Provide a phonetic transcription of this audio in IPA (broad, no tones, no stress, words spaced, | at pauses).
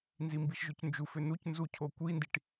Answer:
nzimbiʃʒʉcnd͡ʒuf ønucnzucʰo kʷindiʈ